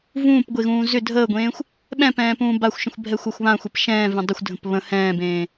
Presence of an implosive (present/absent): present